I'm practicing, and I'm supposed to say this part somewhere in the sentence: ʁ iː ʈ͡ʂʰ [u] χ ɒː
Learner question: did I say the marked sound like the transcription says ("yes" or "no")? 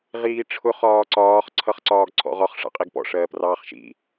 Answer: no